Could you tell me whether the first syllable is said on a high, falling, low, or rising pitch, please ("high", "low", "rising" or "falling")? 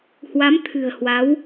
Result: rising